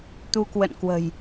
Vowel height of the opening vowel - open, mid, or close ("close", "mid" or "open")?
close